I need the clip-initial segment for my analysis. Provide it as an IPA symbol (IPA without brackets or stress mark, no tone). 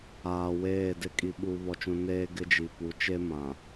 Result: aː